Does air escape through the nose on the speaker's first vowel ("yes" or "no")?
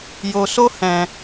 no